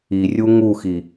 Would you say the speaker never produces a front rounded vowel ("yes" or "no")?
yes